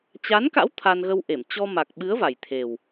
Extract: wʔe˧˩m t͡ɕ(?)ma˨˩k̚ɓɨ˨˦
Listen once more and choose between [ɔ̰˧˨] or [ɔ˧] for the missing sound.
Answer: ɔ˧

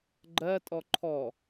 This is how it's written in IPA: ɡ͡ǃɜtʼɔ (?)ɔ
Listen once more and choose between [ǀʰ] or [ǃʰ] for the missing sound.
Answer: ǃʰ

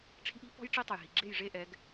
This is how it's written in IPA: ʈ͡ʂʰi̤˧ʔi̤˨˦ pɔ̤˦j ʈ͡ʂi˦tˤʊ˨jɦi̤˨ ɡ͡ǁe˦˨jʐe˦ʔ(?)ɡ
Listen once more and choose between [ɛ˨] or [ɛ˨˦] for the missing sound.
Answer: ɛ˨˦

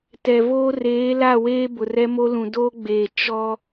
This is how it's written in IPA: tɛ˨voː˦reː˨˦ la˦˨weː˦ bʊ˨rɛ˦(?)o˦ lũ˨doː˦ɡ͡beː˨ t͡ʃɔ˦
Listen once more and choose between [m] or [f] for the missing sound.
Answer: m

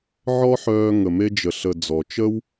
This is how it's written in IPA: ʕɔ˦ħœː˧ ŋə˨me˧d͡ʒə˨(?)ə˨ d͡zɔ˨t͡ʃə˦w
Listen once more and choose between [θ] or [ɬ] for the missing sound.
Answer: ɬ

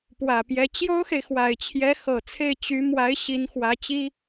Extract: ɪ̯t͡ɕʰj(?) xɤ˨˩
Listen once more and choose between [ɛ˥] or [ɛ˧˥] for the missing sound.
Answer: ɛ˧˥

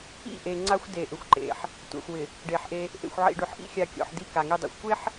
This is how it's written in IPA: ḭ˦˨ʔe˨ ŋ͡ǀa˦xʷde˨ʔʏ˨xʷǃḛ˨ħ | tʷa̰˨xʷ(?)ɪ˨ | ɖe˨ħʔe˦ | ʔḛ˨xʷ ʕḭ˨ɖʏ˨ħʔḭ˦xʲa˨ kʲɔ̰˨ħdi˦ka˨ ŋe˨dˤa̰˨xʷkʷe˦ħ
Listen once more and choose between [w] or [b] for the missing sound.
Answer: w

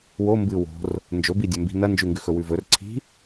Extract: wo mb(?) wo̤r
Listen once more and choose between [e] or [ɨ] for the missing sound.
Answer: ɨ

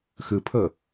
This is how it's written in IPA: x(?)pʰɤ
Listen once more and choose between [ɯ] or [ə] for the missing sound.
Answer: ɯ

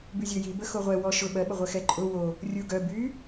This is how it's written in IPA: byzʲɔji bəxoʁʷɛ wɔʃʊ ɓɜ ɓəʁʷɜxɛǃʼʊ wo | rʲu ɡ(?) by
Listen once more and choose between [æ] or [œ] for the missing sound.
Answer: œ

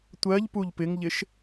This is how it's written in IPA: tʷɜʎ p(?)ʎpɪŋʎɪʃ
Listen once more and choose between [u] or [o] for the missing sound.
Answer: u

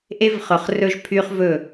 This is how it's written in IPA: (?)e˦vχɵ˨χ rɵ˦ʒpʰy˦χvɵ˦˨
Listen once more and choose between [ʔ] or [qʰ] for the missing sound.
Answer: ʔ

